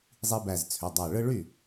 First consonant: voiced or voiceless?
voiced